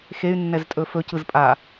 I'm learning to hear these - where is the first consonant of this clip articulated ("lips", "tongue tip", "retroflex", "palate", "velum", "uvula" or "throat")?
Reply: velum